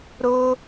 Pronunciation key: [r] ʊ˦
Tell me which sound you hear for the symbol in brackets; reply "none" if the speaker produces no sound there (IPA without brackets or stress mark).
ɾ